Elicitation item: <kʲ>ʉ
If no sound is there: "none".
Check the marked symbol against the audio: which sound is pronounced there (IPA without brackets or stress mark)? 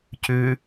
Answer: c